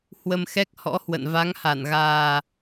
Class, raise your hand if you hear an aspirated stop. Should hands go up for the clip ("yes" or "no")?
no